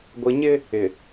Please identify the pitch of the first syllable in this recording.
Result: low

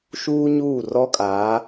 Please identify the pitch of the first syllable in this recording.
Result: high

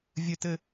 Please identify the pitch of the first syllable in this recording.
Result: high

